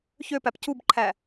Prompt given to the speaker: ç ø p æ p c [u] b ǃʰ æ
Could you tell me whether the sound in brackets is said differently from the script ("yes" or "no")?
no